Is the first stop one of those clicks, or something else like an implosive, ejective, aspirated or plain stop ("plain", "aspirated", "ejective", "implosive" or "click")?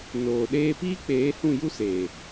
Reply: implosive